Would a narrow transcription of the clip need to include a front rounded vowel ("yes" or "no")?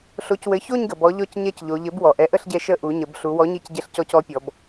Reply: no